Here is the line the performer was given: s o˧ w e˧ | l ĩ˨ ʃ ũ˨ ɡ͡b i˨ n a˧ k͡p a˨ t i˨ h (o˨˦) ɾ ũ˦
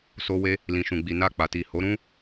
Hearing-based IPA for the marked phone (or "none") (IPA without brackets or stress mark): o˨˦